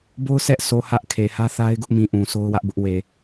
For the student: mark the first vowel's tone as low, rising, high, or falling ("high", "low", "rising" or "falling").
high